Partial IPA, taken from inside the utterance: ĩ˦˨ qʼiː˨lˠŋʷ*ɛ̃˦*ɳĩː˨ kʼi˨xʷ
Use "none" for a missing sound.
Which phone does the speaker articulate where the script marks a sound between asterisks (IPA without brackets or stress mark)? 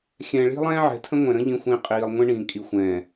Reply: ɛ̃˦